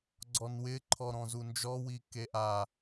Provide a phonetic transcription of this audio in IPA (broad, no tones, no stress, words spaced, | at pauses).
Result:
ɡ͡ǀɔnwɪ ǃʰɔɾɔ̃zund͡ʒɔ wikeʔa